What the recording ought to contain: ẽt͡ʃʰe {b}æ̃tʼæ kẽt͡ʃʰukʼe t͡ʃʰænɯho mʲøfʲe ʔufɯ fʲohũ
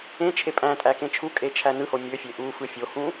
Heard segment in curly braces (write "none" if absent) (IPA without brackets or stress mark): pʼ